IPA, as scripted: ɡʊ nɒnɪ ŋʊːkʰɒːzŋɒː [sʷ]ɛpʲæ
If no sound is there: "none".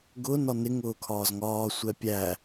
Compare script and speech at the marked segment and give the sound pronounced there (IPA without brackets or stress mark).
sʷ